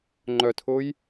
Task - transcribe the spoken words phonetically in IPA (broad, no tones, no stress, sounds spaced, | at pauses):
ŋ͡ǃ œ tʰ ʊː j